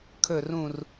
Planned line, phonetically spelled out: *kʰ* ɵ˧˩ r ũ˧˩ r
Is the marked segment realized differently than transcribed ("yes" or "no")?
no